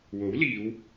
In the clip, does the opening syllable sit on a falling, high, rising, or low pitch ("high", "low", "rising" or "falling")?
rising